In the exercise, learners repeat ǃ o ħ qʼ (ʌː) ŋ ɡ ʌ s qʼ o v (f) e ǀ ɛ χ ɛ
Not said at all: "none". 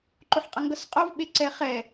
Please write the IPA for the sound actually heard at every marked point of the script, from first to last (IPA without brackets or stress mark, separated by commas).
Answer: ʌ, ɓ